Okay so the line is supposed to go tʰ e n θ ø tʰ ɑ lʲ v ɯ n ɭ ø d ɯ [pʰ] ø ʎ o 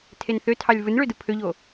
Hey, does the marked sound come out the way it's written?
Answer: yes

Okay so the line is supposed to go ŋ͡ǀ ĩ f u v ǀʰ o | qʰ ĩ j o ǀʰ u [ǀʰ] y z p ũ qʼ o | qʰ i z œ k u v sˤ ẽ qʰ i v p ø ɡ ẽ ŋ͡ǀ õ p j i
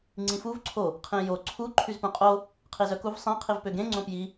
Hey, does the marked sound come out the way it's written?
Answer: no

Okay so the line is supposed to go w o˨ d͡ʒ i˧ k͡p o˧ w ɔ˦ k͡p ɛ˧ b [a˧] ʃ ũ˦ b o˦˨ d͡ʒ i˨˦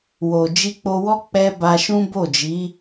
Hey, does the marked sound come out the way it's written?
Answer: yes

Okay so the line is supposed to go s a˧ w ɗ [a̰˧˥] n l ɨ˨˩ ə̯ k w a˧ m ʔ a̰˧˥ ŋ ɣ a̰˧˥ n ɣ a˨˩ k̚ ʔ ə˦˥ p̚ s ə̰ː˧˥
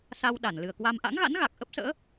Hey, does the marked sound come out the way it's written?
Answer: no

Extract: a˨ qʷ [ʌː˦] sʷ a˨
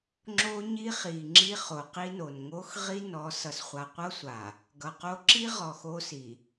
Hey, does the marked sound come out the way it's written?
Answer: no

